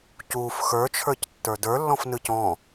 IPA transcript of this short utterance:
cuːf xə˞t͡ʃʰə˞c tːə˞də˞ lːɔ̃fnɯcɔ̃

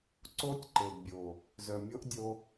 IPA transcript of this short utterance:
ǀo˦tʲ ǃe˨dbʲo˨ | zœ˨mʲo˦ʔdʲo˧

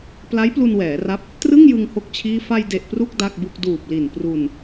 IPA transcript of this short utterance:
pla˦˥jplu˧nwɛː˩˦ ra˦˥p̚ | trɯ˥˩ŋjɯ˧ŋ ho˥˩k̚t͡ɕʰiː˥˩ fa˧jde˨˩ʔ pru˥˩k̚ da˥˩k̚bu˥˩k̚ duː˨˩p̚li˨˩n pru˧n

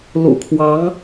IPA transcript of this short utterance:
lṵ˨˩kʰwɑ˧˥ŋ

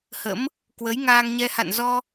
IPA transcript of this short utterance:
hə̰˧˥m | kwə˨˦jŋaː˧ŋɲɛ˧ ha̰˧˨nzɔ˧

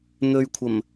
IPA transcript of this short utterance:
n̪ɵ˧ɥkʷʰɐ˨˩m

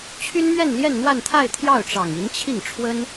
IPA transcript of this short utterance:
t͡ɕʰy˥nmɥɛ˥˧n ljɛ˥˧nn̪wa˥˧nt̪ʰa˥˧ɪ̯ t̪ʰjɑ˥˩ʊ̯ʈ͡ʂɑ˨˩ŋi˧˥nt͡ɕʰi˥˩ŋ ʈ͡ʂʰwə˥n

